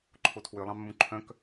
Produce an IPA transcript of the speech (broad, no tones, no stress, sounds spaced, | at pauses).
ǃʰ o tʰ w ø lˠ ɑ̃ mː ũ ǃʰ œ̃ k